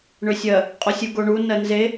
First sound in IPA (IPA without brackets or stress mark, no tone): ɳ